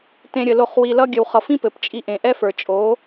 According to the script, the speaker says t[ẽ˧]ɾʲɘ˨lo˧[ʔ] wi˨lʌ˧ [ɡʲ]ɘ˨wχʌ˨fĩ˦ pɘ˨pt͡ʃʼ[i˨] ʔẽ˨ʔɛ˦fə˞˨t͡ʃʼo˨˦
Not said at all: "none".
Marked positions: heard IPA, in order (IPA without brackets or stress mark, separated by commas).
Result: ẽ˧, χ, ɡʲ, i˧